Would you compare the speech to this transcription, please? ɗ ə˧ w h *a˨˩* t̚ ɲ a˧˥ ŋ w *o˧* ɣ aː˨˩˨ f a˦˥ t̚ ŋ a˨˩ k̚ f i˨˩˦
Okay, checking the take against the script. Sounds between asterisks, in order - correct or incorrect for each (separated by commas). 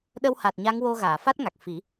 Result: correct, correct